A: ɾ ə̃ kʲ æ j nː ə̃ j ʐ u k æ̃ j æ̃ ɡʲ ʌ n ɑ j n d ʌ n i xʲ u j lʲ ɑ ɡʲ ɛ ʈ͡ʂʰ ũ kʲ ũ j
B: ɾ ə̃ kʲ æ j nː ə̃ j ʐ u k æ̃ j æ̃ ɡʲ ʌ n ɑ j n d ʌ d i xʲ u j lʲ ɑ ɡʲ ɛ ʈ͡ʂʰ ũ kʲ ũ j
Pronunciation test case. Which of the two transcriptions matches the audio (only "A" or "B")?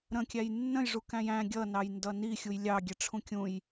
A